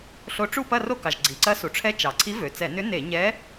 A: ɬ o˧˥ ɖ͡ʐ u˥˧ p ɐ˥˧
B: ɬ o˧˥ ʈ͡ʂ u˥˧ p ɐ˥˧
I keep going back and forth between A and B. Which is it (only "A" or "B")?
B